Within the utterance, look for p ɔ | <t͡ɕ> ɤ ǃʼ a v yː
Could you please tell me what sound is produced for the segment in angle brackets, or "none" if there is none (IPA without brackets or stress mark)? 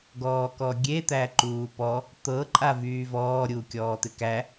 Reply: t̪